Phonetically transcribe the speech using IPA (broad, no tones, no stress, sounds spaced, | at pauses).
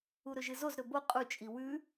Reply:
u ɾ ɵ ʒ ɨ z o z ɾ ɵ b o qʼ u t͡ʃʼ i w ʉ